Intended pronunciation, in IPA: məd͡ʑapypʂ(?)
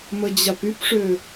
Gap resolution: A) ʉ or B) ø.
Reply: B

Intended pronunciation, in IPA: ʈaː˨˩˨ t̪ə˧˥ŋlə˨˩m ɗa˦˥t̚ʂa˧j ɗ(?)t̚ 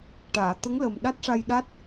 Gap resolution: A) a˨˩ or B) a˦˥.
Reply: B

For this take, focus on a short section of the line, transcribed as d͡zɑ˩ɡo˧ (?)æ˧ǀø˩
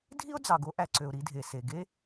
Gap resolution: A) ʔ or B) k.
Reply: A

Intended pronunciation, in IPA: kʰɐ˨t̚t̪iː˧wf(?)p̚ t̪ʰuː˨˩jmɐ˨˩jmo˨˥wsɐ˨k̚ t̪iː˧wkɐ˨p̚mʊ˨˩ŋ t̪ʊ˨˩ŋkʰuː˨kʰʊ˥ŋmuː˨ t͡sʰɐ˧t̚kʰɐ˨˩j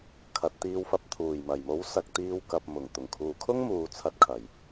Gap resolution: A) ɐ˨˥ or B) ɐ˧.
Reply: B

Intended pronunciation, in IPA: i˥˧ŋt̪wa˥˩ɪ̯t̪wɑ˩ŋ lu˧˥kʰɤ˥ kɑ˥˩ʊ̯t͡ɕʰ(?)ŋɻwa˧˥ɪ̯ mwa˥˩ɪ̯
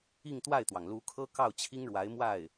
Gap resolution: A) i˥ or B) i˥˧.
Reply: A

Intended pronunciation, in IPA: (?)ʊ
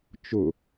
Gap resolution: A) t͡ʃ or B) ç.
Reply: A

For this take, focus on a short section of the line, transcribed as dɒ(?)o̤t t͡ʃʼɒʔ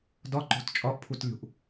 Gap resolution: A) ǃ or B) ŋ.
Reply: A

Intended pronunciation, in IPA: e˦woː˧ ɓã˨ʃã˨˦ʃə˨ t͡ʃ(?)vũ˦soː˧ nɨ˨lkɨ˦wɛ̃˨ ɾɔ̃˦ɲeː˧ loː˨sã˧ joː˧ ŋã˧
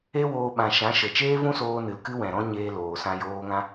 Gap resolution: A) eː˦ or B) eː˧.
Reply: A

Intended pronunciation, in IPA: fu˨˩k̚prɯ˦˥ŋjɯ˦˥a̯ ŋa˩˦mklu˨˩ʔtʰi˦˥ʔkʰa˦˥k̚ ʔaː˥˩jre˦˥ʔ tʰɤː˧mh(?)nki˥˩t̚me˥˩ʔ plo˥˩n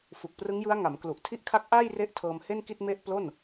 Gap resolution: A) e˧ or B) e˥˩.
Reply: B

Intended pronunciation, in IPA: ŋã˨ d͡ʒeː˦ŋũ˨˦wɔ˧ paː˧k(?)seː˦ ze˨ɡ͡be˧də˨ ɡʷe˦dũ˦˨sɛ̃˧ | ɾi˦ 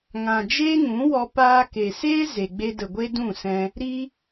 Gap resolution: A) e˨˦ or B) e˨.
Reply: B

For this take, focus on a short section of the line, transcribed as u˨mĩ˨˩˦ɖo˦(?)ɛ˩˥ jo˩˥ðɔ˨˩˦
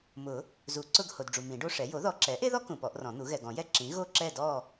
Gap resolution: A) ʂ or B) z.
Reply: A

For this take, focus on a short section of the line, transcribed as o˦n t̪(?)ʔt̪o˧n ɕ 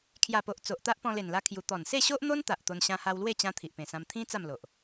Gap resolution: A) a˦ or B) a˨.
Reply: B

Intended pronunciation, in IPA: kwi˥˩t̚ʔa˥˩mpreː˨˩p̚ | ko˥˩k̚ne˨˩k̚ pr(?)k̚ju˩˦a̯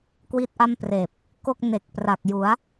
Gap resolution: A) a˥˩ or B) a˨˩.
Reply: B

